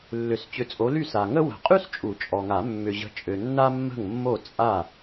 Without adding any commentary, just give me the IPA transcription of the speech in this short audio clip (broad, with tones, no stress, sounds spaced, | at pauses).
lː ʏ˨˩˦ s t͡ɕ ʏ˨˥ t͡sʼ o˨˥ l y˥˩ s a˨ ŋ ə˥ w ə̤˨˩˦ qʼ y˥ s t͡ʃʼ u˨˩˦ t͡ʃʼ ɔ˨ ŋ a˨˩˦ mː ʏ˨ ʑ ə̤˨˥ t͡ʃʼ ø˨ nː a˥ mː ə̤˥˩ ŋ mː o˥˩ t͡sʼ a˥˩